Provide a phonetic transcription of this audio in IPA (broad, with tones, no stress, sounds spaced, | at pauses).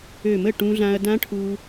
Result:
ø˧˩ m ə˥˩ ʈ ũ˧ ɮ ã˧ ɐ̯ d ã˦˥ ʈʰ u˧